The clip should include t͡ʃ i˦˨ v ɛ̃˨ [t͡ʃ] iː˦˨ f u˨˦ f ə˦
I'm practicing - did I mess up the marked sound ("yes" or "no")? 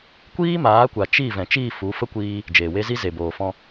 no